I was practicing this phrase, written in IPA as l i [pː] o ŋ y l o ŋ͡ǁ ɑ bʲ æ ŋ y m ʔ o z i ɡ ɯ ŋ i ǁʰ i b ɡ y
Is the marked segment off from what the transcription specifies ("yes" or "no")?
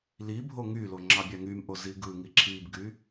yes